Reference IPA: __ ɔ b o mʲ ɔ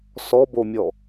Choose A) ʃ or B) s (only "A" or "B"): B